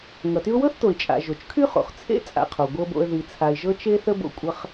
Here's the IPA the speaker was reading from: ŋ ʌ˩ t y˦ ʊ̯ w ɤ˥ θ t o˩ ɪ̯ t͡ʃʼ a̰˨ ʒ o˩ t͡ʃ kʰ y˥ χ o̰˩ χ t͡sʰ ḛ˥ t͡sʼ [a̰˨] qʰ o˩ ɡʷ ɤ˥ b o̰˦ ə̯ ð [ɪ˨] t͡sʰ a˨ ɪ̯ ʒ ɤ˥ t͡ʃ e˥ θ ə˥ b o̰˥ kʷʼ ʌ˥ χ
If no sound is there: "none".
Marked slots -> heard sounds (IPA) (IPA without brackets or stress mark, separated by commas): a̰˨, i˨